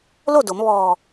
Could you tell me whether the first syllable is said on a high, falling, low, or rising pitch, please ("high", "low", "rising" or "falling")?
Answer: falling